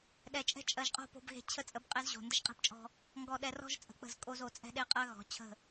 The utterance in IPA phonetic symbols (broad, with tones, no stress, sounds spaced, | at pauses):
ɗ ɛ˨ t͡ʃʼ ɛ̤˦ t͡ʃʼ ɜ˨ ʒ qʼ o̤˦˨ p o̤˨ b ɣ e̤˨ t͡ɕʰ ə˦ t͡sʼ ə˨˦ b qʼ e˦ z ʑ o̤˨ n d ə˦ ʃ qʼ e̤˦ p t͡ʃʼ ɔ̤˦ | ŋ ɡ ɔ˨ ɗ ɛ˨ r ɔ̤˦ ʒ t͡sʼ ə̤˨ k͡p ə̤˦˨ z kʼ o˦ z o˨ t͡sʼ ɛ̤˦ ɗ e˦ qʼ ɜ˦ ɣ ɔ̤˨˦ t͡ɕʰ ə̤˦˨